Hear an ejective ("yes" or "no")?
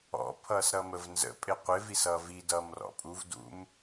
yes